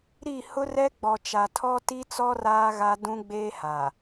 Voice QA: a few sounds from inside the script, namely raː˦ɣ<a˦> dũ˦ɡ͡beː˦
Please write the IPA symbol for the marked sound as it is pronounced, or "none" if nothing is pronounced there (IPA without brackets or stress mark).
a˦